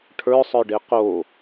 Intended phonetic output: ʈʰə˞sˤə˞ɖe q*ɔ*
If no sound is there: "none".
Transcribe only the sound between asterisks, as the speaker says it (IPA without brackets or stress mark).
o